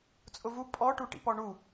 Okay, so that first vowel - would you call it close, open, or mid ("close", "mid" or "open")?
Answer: close